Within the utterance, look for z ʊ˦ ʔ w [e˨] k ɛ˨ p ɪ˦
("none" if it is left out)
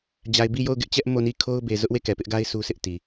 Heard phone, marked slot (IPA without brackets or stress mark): e˦˨